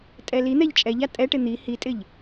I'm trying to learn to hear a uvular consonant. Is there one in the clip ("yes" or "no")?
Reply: no